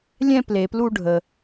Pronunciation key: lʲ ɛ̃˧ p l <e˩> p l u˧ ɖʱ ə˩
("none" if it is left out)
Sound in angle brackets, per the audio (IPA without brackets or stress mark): e˩